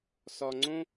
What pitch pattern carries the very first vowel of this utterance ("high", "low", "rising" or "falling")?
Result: low